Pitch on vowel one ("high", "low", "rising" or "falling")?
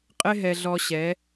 high